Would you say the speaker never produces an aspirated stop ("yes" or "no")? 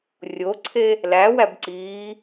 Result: no